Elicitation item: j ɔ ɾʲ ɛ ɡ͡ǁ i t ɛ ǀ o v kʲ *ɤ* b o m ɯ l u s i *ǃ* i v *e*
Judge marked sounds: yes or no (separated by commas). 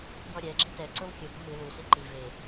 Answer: no, yes, yes